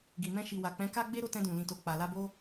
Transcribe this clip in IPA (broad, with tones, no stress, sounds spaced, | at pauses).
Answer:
ɡ i˨ m ɛ̃˧ ʃ i˨ w a˨ k͡p ɛ̃˨˦ k a˦ ɡ͡b e˦ ɾ o˦˨ t ɛ̃˧ d ũ˨ l ĩ˨ t o˨ k͡p a˨ l a˧ b o˦